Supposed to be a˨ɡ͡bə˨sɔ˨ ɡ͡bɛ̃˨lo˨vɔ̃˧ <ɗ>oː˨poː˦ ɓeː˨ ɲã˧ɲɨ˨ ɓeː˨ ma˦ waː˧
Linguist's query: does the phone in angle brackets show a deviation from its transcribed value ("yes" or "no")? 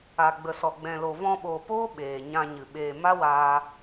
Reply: yes